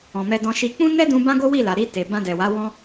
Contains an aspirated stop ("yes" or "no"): no